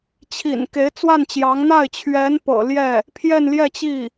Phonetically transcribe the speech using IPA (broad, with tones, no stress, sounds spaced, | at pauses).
t͡ɕʰ ḭ˨˩ n k e˧˥ ɪ̯ t͡s w a˥˩ n t͡ɕ j ɑ˧˥ ŋ n̪ a˥˩ ɪ̯ t͡ɕʰ ɥ ɛ˧˥ n p ɤ̰˨˩ l j ɛ˥˩ | pʰ j ɛ˥˧ n l j ɛ˥˧ t͡ɕ i˥˩